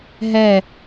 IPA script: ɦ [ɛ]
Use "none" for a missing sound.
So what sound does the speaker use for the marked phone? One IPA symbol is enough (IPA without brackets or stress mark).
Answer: ɛ